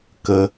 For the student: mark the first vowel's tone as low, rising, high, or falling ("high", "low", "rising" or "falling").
low